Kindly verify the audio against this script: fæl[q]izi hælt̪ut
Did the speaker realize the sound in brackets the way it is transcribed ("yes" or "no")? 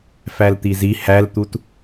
no